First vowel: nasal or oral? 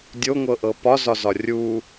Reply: oral